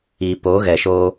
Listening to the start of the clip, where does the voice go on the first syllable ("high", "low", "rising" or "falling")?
low